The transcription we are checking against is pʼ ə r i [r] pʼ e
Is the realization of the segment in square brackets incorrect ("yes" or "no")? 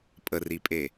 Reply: yes